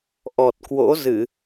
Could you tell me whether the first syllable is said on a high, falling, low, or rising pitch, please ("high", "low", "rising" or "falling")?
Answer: low